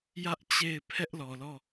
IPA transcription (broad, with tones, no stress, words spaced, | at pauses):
jä˦ʔt͡ɕe˦˨ɪ̯ pʰɛ˦ʔlɔ˨lɔ˦˨